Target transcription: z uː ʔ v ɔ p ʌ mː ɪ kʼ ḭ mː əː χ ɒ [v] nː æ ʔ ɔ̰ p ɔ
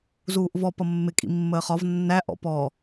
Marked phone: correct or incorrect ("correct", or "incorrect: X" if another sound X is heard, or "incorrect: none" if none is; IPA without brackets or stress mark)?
correct